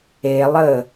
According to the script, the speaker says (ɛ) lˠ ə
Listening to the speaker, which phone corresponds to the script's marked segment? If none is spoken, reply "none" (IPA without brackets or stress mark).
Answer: e